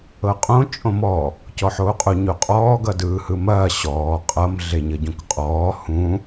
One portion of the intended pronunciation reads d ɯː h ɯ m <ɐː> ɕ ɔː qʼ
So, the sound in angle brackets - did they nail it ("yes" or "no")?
yes